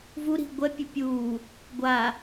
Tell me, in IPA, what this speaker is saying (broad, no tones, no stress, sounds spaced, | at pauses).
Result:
v u ɾ i̤ ɡʷ ɛ pʲ ɛ pʲ uː | ɡʷ a